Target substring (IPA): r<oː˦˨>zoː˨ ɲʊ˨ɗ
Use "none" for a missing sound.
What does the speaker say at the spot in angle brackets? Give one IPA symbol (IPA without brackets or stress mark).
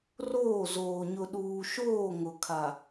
oː˦˨